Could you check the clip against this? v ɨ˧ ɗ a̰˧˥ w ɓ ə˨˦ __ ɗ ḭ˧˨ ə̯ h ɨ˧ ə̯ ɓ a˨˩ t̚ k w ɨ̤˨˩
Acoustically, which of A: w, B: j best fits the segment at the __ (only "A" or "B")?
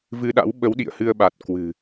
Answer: A